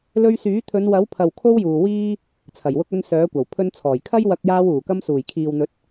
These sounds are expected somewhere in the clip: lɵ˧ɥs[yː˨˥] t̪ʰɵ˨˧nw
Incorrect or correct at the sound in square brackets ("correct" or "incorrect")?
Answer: correct